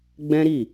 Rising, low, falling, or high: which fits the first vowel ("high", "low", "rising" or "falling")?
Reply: high